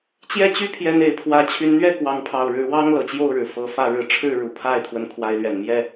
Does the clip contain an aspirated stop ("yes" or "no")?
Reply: yes